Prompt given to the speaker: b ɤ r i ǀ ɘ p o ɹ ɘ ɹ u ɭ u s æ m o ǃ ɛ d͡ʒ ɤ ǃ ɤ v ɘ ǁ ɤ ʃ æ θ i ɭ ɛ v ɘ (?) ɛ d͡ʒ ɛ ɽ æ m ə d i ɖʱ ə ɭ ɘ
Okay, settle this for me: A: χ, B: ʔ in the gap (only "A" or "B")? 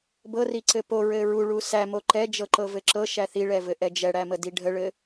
B